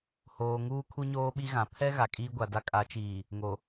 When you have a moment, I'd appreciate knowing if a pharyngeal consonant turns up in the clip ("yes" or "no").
no